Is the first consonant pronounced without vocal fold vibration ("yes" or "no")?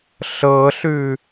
yes